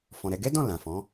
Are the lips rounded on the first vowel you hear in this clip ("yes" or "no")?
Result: yes